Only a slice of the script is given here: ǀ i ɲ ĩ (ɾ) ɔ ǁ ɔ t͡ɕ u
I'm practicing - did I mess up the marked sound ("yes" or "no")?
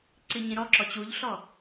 no